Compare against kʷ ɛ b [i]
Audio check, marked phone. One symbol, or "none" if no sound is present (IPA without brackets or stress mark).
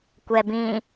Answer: ĩ